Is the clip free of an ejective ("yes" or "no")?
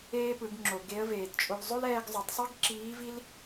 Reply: no